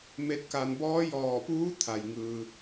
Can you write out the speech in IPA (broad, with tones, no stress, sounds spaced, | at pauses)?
m e˧˥ t̚ k a˧ n b ɔː˧˥ j ɔː˧˩ p uː˧˥ t̪ʰ a˩ j ŋ ɯː˧